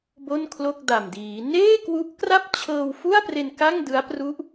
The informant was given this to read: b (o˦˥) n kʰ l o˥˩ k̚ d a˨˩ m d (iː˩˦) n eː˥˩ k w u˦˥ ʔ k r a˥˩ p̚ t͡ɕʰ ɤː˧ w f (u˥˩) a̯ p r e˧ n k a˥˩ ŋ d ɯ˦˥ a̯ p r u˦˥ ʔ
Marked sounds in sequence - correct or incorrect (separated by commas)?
incorrect, correct, correct